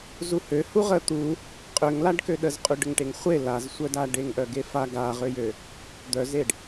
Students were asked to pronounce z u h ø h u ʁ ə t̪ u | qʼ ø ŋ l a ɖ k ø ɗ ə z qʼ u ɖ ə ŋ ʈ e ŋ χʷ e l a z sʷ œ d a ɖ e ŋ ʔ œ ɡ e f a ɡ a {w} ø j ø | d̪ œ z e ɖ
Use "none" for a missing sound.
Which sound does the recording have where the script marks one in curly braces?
ʁ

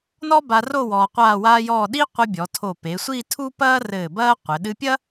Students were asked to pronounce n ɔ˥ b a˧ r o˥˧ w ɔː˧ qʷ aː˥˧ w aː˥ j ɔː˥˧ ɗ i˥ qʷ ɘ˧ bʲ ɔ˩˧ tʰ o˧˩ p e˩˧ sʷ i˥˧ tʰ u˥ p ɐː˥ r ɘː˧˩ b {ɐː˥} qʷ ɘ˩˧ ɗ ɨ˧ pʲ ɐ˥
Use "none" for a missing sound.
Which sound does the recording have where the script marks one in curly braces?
ɐː˥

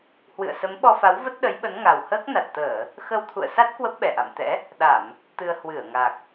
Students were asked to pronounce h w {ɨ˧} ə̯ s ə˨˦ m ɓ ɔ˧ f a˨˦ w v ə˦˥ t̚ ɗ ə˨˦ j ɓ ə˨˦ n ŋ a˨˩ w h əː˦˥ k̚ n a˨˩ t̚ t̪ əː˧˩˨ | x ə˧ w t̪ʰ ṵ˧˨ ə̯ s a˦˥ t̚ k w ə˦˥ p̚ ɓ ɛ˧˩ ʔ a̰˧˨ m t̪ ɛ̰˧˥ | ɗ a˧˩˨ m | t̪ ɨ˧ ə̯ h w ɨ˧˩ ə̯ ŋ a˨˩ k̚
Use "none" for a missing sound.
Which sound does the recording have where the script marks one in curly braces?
ɨ̰˧˨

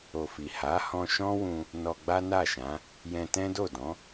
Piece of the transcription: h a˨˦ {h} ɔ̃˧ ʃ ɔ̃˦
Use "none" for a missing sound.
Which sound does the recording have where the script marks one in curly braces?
h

